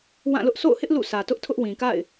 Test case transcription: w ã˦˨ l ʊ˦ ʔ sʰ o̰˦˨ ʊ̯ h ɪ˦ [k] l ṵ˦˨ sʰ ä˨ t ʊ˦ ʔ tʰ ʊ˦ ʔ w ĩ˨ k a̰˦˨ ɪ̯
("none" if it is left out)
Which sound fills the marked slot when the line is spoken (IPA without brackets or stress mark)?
ʔ